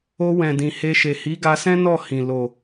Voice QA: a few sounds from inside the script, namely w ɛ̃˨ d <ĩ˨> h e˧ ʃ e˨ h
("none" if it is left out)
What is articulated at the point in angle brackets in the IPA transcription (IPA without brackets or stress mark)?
ĩ˨